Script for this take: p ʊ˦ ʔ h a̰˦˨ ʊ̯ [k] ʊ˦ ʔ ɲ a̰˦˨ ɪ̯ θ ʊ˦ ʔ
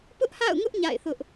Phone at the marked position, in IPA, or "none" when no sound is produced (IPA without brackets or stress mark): ŋ